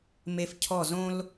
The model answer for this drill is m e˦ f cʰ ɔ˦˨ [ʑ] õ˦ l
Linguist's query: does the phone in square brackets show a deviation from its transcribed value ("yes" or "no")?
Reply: yes